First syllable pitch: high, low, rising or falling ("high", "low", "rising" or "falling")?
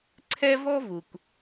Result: high